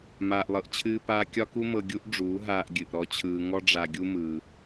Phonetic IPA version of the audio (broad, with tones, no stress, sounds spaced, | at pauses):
m aː˨ ʔ lˠ ɤ˨ ʔ t͡ɕʰ ɨː˧ p aː˧ kʲ ɒ˦ k u˦ m ɤ˧ ɡʲ u˦ ʔ ɖ͡ʐ uː˨˦ ɦ aː˧ ʔ ɡʲ ɨ˨ ʔ ɾ ɔ˧ t͡ɕʰ ɯː˧ ŋ ɔ˦ ɖ͡ʐ a˧ ɡʲ u˦ m ɯː˧